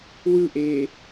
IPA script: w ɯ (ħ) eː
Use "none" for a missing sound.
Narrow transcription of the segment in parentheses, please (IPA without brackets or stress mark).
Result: ʔ